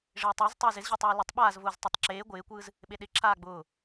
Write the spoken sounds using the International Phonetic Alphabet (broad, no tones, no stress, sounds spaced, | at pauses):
ʐ ɪː tˤ ʊː z tˤ e z ɪ z ʑ ʊː tˤ w o l ɪ tˤ ɓ aː z v ʊː z tˤ o tˤ ǁ eː ɡʷ ɪː kʷ ɯː z | ɓ e ɗ ɪ ǁʰ aː ɡ͡b ʊː